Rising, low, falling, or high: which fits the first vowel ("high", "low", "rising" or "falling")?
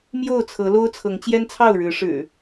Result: falling